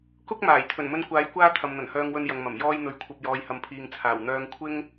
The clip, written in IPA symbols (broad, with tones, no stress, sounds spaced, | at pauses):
k ʊ˥ k̚ m aː˨˩ j t̪ʰ ɵ˨˩ n m ɵ˧ n kʷ aː˨˥ j kʷ aː˥ t̪ʰ ɐ˨ m n̪ ɐ˨˩ n h œː˧ ŋ w ɵ˧ n j ɐ˨ ŋ m ɐ˨˩ m j ɔː˧ j n̪ ɵ˨ ɥ kʷʰ ɐ˨ p̚ j ɔː˨˧ j h ɐ˨ m pʰ iː˨ ŋ t͡sʰ aː˨˩ w n̪ œː˧ ŋ kʷʰ ɪ˥ ŋ